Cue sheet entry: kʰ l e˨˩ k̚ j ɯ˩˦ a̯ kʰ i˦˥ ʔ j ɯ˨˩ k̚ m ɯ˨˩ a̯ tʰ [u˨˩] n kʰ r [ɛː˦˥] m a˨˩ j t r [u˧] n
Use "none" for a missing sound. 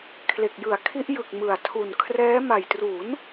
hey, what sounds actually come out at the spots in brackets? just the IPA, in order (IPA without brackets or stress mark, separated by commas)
u˨˩, ɛː˦˥, u˩˦